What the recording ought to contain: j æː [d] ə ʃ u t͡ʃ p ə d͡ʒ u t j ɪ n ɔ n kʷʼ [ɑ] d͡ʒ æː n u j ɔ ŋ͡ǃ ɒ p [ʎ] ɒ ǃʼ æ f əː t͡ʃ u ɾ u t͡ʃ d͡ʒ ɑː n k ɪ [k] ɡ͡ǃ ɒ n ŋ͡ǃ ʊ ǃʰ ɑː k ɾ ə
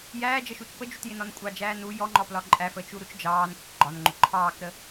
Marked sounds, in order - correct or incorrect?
incorrect: d͡ʒ, correct, incorrect: l, correct

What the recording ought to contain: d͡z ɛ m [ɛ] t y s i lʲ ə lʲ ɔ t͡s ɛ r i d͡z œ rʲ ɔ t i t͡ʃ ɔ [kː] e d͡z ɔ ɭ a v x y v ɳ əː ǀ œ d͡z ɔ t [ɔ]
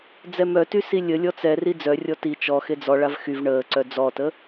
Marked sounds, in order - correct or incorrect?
incorrect: œ, incorrect: x, incorrect: ə

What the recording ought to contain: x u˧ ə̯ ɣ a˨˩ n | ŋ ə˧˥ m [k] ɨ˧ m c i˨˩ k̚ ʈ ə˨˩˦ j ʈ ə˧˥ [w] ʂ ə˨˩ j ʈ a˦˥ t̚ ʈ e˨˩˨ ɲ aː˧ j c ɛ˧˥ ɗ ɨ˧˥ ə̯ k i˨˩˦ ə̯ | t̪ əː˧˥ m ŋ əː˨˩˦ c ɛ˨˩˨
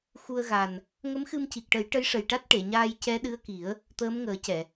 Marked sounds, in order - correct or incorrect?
incorrect: x, incorrect: j

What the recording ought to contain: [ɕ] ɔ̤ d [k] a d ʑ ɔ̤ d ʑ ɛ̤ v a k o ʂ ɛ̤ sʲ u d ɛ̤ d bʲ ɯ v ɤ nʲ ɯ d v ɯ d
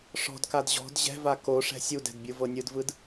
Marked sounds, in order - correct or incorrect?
incorrect: ʂ, correct

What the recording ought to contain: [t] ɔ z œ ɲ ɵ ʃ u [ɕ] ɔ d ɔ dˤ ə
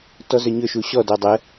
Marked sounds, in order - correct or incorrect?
correct, correct

